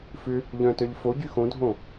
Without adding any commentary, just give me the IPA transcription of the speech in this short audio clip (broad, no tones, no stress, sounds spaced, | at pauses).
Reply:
f ʏ | ʎ œ̃ t œ ʎ f o ɟ y x õ dʱ õ